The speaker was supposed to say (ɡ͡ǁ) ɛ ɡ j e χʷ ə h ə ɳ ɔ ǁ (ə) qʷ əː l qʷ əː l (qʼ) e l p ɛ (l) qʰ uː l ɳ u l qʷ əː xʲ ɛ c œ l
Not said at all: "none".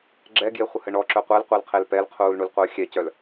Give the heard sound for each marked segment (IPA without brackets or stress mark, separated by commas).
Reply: ɡ͡ǁ, œ, qʰ, l